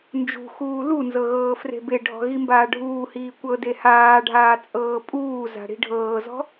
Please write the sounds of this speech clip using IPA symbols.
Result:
n d͡ʒ ṳ x uː l u n z ɤ ɣ ɤː f r e̤ b e ɖʱ ɔ̤ ɣ i m b aː ɖʱ uː h iː kʷ ɤ d e h aː ɖʱ aː t͡sʼ ɤː pʼ uː z a̤ ɽ i̤ ɖʱ ɤː z ɔ̤

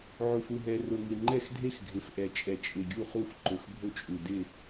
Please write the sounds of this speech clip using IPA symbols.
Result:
ʕ u˨˩ f u˥˩ ɦ ɛ˨˩ r ʊ˨˩ ŋ ɪ˨˩ ŋ͡ǃ ɛ˥˩ x dʱ e˥˩ x ɡʱ ɪ˨˩ f ʔ ɛ˨˩ t͡ʃʼ ɛ˨˩ t͡ʃʼ ɪ˨˩ ɡʲ u˥˩ χ u˥˩ f ǃ ʊ˨˩ x bʱ ʊ˥˩ t͡ʃʼ u˨˩ d ɪ˥˩

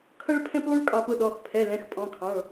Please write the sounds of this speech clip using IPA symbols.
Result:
kʰ ʌ˥ ɭ pʰ ɛ̃˥ p lˠ u˥ ɭ kʼ ɑ˥ p ʊ˥ ɗ ɔ˧˥˧ x pʰ ɛ˧˥˧ l ɛ̃˧˥˧ x pʼ ɔ̃˧˥˧ kʰ ɑ̃˧˥˧ ɭ

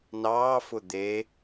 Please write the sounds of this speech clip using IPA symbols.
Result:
n ɑː f ʊ d̪ e

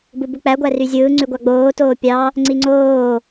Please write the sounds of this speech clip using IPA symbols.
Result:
b ɯ b u k͡p æ ɡʷ æ r y zʲ ɯː ŋ͡ǀ y ɡʷ ɑ ɡ͡b oː t oː pʲ ɑ | ŋ͡ǀ i ŋ͡ǀ oː

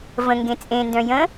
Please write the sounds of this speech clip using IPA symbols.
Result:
v ə̃ ŋ ɡ ẽ t͡sʼ ẽ n d œ̃ j ə̃

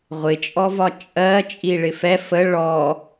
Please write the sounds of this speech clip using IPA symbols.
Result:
ʁʷ ɪ t͡ʃʼ ɔ v ɒ t͡ʃʼ ɜ t͡ʃʼ i ɭ ɪ f ɛ f ə ɭ ɔ

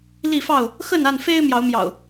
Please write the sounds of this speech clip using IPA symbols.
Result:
l i˥˨ f ɑ˥˨ ʊ̯ | x ə˥˨ n a˥˨ n f e˦ ɪ̯ m j ɑ˨˦ ʊ̯ m j ɑ̰˨˩ ʊ̯

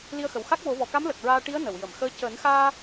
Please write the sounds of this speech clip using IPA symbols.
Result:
l i˧ ə̯ x ə˨˩ w x a˦˥ k̚ w o˨˩˦ v ɔ˨˩ k a˧˥ m l ə˨˩ k̚ ɹ aː˧ ʈ i˧˥ ə̯ n ə˨˩˨ w j ə˨˩˨ m x əː˧˥ c əː˨˩˦ n x aː˧

